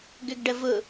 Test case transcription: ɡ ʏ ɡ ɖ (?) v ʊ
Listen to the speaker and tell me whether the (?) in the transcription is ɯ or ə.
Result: ə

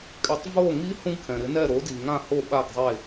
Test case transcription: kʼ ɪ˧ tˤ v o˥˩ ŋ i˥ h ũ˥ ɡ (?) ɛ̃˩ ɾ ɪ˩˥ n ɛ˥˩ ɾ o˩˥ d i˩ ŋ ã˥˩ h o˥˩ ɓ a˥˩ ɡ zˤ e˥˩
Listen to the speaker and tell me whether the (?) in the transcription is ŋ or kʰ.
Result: kʰ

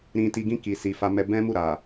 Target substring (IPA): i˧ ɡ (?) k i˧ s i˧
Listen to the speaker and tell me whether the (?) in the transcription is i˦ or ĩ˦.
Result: ĩ˦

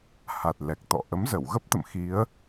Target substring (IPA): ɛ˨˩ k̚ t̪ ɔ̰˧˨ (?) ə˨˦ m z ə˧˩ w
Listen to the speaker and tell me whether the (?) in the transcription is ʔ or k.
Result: ʔ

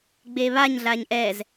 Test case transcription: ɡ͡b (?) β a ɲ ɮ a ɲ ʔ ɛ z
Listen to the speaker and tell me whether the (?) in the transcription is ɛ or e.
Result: e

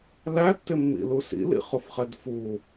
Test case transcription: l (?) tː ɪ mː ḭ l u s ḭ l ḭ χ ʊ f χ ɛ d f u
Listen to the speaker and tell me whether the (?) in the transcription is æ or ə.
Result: æ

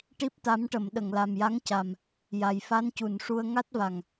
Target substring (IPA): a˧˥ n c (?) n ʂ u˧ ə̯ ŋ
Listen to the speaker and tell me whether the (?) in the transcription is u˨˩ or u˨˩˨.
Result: u˨˩˨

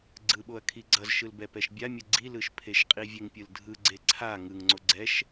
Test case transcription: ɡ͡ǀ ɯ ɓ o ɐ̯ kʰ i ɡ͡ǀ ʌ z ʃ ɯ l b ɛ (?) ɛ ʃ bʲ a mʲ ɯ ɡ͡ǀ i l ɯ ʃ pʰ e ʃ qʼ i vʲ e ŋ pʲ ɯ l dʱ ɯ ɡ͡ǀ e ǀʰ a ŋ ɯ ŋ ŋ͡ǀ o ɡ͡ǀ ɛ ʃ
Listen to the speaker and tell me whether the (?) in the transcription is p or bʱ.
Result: p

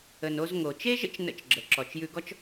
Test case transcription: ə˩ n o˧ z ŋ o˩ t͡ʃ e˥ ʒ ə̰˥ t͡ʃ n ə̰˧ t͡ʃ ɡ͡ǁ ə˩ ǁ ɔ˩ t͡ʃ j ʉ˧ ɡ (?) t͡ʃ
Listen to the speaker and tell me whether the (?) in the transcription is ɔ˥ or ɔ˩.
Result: ɔ˥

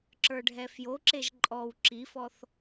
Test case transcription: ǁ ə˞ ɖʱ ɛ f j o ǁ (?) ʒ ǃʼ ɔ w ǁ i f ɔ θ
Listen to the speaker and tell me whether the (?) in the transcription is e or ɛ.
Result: e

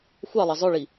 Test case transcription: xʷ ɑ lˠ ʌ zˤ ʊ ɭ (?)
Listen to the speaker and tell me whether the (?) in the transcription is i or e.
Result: i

